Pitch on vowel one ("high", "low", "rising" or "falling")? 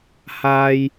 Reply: high